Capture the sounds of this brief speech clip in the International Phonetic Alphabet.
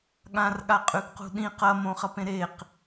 ɠãrɠaqʼʉɡqṳ ɗĩ qɐmõχɐpẽ ɾeq

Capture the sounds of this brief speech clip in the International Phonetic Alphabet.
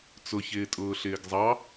t͡sʊ çɪːtʼʊːɬɪːɡzˤɑ

